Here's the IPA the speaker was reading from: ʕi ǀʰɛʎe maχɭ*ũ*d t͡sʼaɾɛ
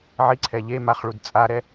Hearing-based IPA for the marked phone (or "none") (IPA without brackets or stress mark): u